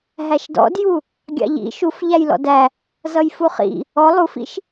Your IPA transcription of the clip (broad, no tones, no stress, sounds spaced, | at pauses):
ɦ æ ʃ d ɔ̰ d j u | ɡʲ ɑ̰ ʎ ḭ ʃ u f ʎ æ j l ɔ̰ d æ | z ʌ j f u χ ḭ | ɔ lˠ u f ḭ ʃ